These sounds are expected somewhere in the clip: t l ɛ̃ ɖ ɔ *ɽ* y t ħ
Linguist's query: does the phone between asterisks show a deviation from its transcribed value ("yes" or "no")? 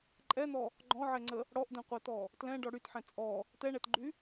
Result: no